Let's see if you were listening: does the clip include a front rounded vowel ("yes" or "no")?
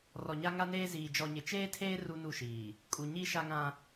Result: no